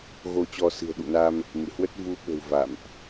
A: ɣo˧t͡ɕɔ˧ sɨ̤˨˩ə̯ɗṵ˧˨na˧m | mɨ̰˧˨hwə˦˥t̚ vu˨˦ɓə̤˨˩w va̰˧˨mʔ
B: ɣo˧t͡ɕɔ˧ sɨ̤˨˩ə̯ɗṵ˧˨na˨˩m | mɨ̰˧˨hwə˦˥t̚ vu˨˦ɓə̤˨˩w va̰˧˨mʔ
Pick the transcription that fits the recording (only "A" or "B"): A